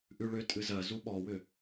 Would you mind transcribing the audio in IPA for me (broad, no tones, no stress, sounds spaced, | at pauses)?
ʔ ʉ ɭ ʏ tʼ ɨ z ɜ z u ɓ ɔ w ʏ